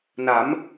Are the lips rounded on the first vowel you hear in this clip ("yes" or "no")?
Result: no